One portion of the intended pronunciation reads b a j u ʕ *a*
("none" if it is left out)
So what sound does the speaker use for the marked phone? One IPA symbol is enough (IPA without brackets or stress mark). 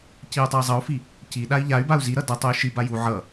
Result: ʌ